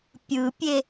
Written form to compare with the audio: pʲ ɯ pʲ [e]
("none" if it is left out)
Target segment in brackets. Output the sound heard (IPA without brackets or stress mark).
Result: e